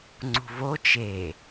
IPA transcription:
ŋ͡ǀ ṳ v o t͡ʃ e

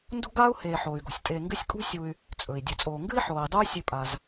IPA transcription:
n d ṳ˥ ɡ aː˥ u̯ h eː˨ ħ oː˩ y̯ ɡ o̤˩ sʲ tʼ eː˨ ŋ ɡ ɨ˦ sʲ kʼ ṳ˦ sʲ u˨ y̯ | t͡sʼ ɵ˩ i̯ dʲ ɨ˩ t͡sʼ oː˨ ŋ ɡ ɨ˥ i̯ ħ oː˩ i̯ dˤ uː˦ sʲ ʉ˨ pʼ a˩ z

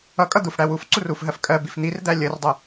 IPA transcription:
ʌ kʼ ʌ d̪ u f ɽ æ w u f ǀ u r u f ɦ ɜ f kʼ ɜ b i f n̪ i r d̪ æ lʲ ə r dˤ ə

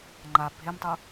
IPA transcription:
ŋ͡ǃ a bʱ e m tˤ u

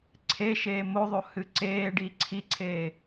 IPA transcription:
ǀʰ e ʃ eː m o ðˤ o h ɨ ǀ eː ɖ i ǀʰ i ǀʰ eː

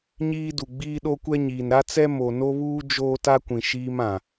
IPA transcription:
ɲ iː˦ d u˨ ɡ͡b iː˦ ɗ o˦ kʷ ɛ˦ ɲ iː˨ n ɾ a˦ t͡s ɛ˦ m o˨ n o˦ β uː˦ d͡ʒ oː˦ t a˦ kʷ ĩ˨ ʃ iː˦ m ã˨

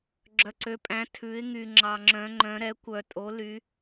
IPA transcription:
ɡ͡ǁ œ˩ ǀ ø˩˧ pʼ æ̃˩˧ tʰ ʉ˩˧ ɪ̯ ŋ y˩ ŋ͡ǁ ɑ˩ ŋ͡ǁ œ̃˩˧ ŋ͡ǃ œ̃˩˧ ɾ ɛ˩˧ kʷ œ˩ tʼ o˩˧ l y˩˧

